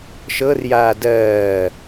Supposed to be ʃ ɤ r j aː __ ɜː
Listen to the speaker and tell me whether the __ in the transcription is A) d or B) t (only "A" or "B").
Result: A